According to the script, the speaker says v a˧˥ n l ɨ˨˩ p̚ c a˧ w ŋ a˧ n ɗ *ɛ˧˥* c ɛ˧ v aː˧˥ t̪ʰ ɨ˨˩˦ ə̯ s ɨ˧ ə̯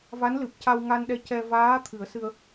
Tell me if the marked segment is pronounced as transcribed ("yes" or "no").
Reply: no